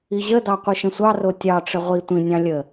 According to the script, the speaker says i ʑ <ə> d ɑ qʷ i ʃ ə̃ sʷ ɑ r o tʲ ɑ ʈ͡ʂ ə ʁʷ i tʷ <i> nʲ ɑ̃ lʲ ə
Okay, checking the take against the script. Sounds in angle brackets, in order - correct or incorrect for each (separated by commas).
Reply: correct, incorrect